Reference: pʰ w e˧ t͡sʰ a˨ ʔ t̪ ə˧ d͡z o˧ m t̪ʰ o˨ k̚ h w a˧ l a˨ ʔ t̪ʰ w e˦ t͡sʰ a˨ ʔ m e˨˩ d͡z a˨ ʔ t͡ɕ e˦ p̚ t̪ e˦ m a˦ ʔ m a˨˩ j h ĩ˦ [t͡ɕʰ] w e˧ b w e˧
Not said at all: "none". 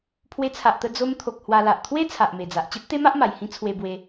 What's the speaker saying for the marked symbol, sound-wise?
t͡sʰ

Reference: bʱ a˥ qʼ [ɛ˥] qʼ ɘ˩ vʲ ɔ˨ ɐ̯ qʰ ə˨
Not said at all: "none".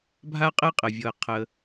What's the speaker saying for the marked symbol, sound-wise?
ɛ˥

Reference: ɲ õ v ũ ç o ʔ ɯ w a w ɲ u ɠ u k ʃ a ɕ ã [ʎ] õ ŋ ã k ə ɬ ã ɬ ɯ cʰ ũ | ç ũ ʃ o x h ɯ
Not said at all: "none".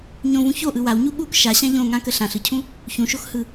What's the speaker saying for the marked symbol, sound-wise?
ʎ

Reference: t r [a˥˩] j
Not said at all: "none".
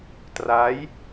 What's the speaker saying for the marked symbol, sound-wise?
a˦˥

